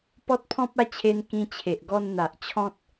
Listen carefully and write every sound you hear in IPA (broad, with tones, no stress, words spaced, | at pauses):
pɔ˦t̚pʰɔ̃˦p̚a˥˧ t͡ɕʰe˧n kĩ˧ t͡ɕʰe˨ʔɡɔ˧n n̪a˨ʔ t͡ɕʰɔ̃˦t̚